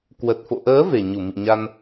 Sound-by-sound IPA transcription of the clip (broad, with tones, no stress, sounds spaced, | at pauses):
k w ə˨˩ t̚ f o̰˧˨ ʔ əː˨˦ v e˨˩ ɲ u˧˩ m ḭ˧˨ ɲ a˧ n